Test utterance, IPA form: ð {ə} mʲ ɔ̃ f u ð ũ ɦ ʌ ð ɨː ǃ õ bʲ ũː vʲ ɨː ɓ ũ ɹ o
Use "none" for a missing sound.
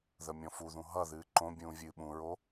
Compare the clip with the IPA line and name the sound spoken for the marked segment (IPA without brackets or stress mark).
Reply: ə